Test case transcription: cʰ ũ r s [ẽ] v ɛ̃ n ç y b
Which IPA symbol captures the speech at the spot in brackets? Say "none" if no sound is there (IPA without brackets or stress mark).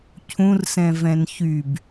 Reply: ɛ̃